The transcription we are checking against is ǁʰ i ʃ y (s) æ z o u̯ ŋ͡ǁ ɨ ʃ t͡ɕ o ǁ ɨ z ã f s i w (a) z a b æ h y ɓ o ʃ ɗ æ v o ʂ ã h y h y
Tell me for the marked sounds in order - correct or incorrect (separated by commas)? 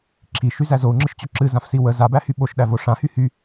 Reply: incorrect, incorrect